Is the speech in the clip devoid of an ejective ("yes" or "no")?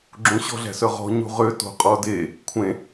no